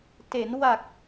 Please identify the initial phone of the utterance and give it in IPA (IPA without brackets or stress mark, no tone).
t